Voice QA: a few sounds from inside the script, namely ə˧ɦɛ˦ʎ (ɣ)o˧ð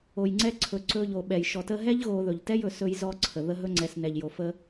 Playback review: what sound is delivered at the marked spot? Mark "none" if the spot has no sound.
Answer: ɣ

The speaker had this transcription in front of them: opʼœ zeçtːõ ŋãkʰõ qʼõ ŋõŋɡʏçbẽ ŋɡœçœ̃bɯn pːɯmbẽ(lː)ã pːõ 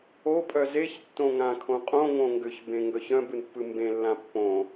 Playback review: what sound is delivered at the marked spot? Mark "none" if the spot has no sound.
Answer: lː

